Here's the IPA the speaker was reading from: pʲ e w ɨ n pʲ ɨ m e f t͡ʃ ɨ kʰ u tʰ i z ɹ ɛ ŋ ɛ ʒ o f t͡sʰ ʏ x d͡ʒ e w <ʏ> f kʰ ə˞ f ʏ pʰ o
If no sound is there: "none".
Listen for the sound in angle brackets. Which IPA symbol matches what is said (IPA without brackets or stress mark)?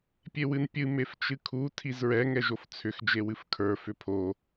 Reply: ɨ